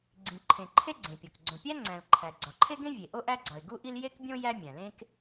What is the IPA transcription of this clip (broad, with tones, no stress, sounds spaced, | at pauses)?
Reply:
ɡ͡ǀ ĩ˩ ǃʰ ẽ˩ ǃʰ e˥ ɡ͡ǀ ẽ˩ pʲ o˩ k ɡ͡ǀ õ˩ pʲ æ˥ ŋ͡ǀ æ̃˩ l ǃʰ æ˩ ɡ͡ǀ ɒ˩ ǃʰ e˥ ɡ ẽ˥ vʲ e˩ ʔ o˥ ʔ æ˥ ɡ͡ǀ ɒ˩ ɪ̯ ɡ u˥ ʔ i˥ l j e˥ k bʲ õ˥ j æ˥ mʲ æ̃˩ l ẽ˥ k